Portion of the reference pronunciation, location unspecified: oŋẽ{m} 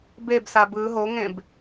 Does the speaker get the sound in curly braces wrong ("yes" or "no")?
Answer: yes